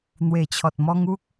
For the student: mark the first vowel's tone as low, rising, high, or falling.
low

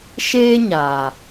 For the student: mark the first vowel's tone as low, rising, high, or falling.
high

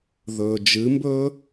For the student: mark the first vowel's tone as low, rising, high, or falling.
low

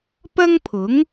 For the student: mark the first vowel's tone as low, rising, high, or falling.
high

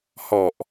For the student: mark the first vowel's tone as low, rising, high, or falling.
low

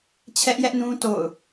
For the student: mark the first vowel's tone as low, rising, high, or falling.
high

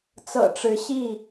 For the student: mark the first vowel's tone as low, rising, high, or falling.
low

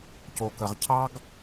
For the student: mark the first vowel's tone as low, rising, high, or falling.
low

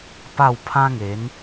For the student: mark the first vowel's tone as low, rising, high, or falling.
falling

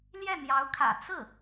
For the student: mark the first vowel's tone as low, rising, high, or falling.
falling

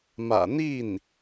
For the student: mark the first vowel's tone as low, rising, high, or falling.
low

